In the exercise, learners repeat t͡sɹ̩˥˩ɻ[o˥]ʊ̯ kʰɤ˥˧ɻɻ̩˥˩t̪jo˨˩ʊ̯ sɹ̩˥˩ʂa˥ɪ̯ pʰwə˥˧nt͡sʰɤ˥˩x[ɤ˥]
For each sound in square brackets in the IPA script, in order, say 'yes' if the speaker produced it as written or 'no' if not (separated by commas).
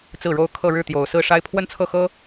yes, yes